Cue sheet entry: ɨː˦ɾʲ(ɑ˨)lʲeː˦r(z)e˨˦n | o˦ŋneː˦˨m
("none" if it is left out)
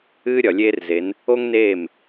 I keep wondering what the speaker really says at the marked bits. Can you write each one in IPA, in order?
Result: ɒ˨, z

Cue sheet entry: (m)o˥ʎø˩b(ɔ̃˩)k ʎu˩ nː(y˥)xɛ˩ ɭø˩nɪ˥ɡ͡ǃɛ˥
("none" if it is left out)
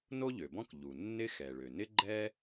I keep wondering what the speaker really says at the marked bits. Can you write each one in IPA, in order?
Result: n, ɔ̃˥, ɪ˥

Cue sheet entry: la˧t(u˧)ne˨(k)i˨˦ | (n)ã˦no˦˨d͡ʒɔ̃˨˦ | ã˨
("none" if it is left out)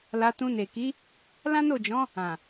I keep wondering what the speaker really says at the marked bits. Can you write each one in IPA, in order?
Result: ũ˧, k, l

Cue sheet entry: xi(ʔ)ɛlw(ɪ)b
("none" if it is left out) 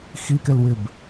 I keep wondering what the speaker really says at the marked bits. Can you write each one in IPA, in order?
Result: k, ɪ

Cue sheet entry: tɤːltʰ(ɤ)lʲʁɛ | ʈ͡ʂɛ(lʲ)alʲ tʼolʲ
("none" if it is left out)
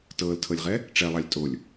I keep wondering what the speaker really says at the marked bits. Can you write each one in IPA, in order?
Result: ɤ, lˠ

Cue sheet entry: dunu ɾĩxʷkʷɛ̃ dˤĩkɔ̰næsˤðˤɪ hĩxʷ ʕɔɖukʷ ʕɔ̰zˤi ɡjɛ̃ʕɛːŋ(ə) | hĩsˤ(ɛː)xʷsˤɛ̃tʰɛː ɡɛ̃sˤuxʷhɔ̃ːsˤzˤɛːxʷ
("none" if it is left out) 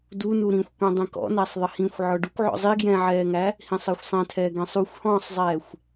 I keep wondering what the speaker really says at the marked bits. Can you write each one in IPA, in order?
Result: æ, əː

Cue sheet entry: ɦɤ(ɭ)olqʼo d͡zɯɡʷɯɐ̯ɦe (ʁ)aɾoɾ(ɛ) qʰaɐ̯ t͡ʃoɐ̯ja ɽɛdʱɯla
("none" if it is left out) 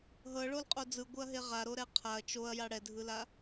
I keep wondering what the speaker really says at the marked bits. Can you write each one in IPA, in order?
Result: ɭ, ʁ, ɛ

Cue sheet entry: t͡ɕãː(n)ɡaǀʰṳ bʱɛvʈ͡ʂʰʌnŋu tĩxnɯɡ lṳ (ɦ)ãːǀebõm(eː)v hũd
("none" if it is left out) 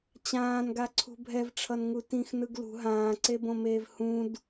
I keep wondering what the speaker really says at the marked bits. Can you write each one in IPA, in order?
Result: n, ɦ, eː

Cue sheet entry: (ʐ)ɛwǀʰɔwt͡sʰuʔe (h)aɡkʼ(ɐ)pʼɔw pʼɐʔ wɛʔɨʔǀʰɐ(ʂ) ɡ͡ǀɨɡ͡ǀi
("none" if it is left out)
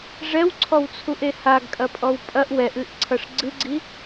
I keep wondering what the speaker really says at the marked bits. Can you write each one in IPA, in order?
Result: ʐ, h, ɐ, ʂ

